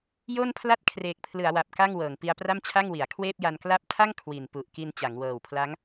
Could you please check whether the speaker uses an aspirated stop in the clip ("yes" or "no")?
yes